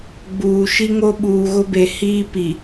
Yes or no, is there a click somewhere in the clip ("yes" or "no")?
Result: no